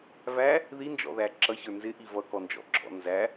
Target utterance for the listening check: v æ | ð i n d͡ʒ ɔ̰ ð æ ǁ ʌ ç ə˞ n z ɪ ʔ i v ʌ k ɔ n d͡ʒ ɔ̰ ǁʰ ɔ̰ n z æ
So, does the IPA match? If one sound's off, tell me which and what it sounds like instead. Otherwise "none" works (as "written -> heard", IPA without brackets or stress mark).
none